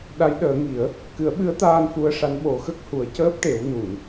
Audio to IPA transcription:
ɗ a˧˥ j ɗ əː˨˩˦ ŋ i˨˩˦ ə̯ | k ɨ˨˩˦ ə̯ ɓ ɨ˧˥ ə̯ t̪ aː˧ n f u˧ ə̯ ʂ a˧˥ n ɓ o˨˩˦ x ə˦˥ k̚ h u˨˩˦ ə̯ c əː˦˥ p̚ ʈ e˨˩˦ w n u˨˩˨ n

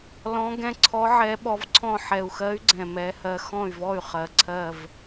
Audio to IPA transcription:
l ɔ̃˧˥ ɡ ɛ̃˧˥ ǀʰ ɔ˧˥ ʕ ɛ˧˥ ɓ ɔ˧˥ v ǀʰ ɔ̃˥˨ ħ ɛ˨˩ u̯ x ɜ˧˥ y̯ ɡ͡ǀ ɛ̃˨˩ m ɛ˧˥ h ɜ˧˥ x ɔ̃˥˨ y̯ v ɔ˥˨ y̯ χ ɜ˨˩ ǀʰ ɜ˥˨ v

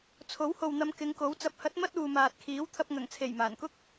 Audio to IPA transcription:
t͡sʰ o˨˥ w h o˨ w n̪ ɐ˨˧ m k ɪ˨˧ ŋ k o˨˥ w t͡s ɐ˨˥ p̚ h ɐ˨˥ t̚ m ɐ˥ t̚ uː˨ m aː˨ t̚ kʰ iː˨˥ w t̪ʰ ɐ˧ p̚ ŋ ɐ˨˩ ŋ t͡sʰ e˨˩ j m aː˨˩ n k ʊ˥ k̚

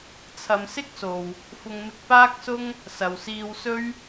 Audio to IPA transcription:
t͡sʰ ɐ˨˧ m s ɪ˥ k̚ s o˨ w | f ʊ˧ ŋ m ɪ˧ k̚ p aː˥ k̚ s ʊ˥ ŋ | s ɐ˨ w s iː˧ w s ɵ˥ ɥ

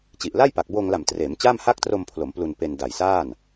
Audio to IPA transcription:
t͡ɕ i˨˩ ʔ l a˥˩ j p a˨˩ k̚ b oː˧ ŋ l a˨˩ m t r eː˩˦ m t͡ɕ aː˥˩ m h a˥˩ k̚ t r o˧ m pʰ l o˩˦ m p l u˧ n p e˧ n d a˨˩ j s aː˥˩ n

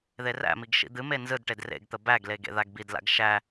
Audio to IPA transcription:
ð e r æ̰ m i ɡ ʃ ḭ d̪ ɨ m e n z ɯ d ʈ e d r ḛ ɡ t̪ ə b æ ɡ l e ɡ ḛ ð a ɡ b i d l a̰ ɡ ʃ æ

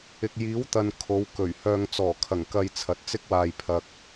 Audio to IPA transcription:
ɪ˨ k̚ j iː˨˥ w t̪ ɐ˨ n kʰ o˨˧ w k ɵ˨˩ ɥ h œː˧ ŋ t͡s ɔː˨˩ kʰ ɐ˨˩ ŋ k ɐ˧ j t͡sʰ ɐ˨ t̚ t͡s ɪ˥ k̚ w aː˧ j pʰ ɐ˧ k̚

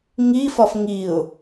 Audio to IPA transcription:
ŋ i f ɒ f ŋ i ʊ̯

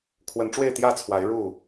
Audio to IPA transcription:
kʰ w ə˨˦ n ʈ͡ʂ w e˥˨ ɪ̯ t̪ j ä˥˨ t͡sʰ w a˨˦ ɪ̯ ɻ u˥˨

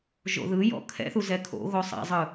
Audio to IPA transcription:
ʒ o̰ ð ɯ j ɔ̰ kʰ ɛ̰ θ u z ɛ kʰ o̰ ɣ o sˤ ɛ̰ zˤ ɯ

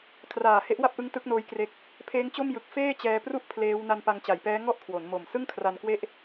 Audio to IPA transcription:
kʰ r aː˨˩ h e˦˥ ʔ w a˥˩ p̚ ʔ ɯ˦˥ ŋ t ɯ˦˥ k̚ n oː˦˥ j k r e˦˥ k̚ | pʰ eː˦˥ ŋ t͡ɕ o˥˩ m j ɯ˨˩ k̚ f eː˥˩ t͡ɕ ɛː˧ p r u˥˩ ʔ pʰ l eː˦˥ w n a˧ n p a˧ ŋ t͡ɕ a˩˦ j p ɛː˦˥ ŋ ɔ˥˩ ʔ kʰ w o˩˦ n m o˨˩ m s ɯ˥˩ ŋ kʰ r a˧ n k w e˥˩ ʔ

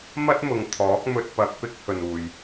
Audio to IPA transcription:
m ɐ˥ t̚ m ʊ˨ ŋ t̪ʰ ɔː˨˥ k̚ m ɵ˧ t̚ p ɐ˧ k̚ p ɪ˥ k̚ h ɵ˨ n uː˨ j

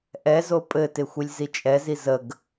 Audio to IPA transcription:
ʔ ɛ z o pʼ ɘ t ɪ xʷ i lʲ z i t͡ʃʼ ɛ z i z ə ɡ

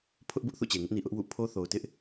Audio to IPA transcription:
pʰ ʊ˦ ʔ b ʊ˦ ʔ θ ṵ˦˨ t͡ɕ e˨ ŋ ɪ˦ ʔ n i˨ ʔ ʊ˦ ʔ w ṵ˦˨ pʰ o˦ θ o˨ ʊ̯ t ɪ˦ ʔ

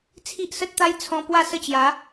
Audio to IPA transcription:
t͡sʰ i˦ ʔ s ə˦ t̚ t̪ a˦ j t͡sʰ ɔ̃˧ p w a˥˧ s ə˥˧ t͡ɕ j a˨˦

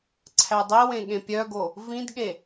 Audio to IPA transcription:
ǀʰ æ dˤ i w ẽ ɠ ẽ pʲ œ ɡ o | v ĩ d ɠ e

